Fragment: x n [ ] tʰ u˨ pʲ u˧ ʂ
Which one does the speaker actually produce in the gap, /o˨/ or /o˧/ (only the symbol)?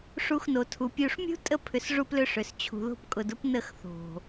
o˨